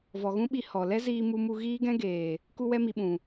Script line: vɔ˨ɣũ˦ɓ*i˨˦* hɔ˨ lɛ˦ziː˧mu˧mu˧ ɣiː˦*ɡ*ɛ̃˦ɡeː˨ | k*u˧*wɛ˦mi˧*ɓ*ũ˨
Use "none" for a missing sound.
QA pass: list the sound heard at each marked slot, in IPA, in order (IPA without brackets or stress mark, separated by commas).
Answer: i˧, ɡ, u˦, ɓ